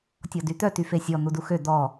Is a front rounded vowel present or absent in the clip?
present